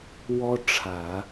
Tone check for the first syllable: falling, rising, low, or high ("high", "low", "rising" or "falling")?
high